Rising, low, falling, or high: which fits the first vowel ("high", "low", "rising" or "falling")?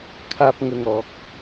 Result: low